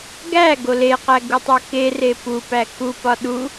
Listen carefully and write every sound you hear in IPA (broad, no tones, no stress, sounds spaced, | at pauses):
ɡ æ ɡ o l e q æ ɡ u tˤ o k e r e p u p æ k u p ɒ ɗ u